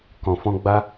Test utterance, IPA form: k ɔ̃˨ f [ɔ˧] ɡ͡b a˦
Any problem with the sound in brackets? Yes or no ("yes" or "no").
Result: yes